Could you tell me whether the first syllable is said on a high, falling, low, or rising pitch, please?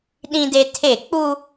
high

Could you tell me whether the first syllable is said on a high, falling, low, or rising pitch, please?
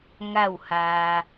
falling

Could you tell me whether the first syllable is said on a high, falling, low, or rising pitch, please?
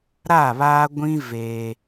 falling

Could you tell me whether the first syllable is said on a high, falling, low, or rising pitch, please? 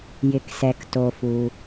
low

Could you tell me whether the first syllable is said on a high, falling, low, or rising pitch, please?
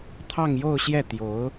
falling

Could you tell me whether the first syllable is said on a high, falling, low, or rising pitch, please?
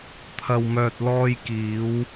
low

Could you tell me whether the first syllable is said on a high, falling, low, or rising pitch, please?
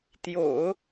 low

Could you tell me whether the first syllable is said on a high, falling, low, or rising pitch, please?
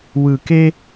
low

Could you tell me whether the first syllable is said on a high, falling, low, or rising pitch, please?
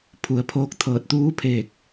low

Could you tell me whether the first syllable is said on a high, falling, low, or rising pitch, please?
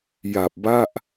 low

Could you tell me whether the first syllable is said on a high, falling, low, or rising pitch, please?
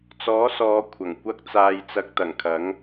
rising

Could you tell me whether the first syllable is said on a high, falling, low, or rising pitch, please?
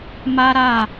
high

